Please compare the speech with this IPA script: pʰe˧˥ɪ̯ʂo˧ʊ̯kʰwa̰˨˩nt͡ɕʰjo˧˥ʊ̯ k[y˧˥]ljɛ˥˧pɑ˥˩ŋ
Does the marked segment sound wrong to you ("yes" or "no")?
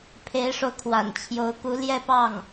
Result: yes